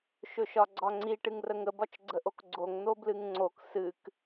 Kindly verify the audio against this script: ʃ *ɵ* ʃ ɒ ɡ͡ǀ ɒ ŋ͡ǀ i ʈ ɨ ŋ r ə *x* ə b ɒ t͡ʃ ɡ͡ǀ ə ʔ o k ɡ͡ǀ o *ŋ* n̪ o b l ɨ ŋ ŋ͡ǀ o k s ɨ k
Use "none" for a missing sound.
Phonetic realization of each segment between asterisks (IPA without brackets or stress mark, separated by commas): ɵ, ŋ, ŋ